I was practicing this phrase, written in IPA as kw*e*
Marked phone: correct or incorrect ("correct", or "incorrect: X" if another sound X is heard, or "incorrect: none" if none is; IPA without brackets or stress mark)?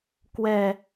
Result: incorrect: ɛ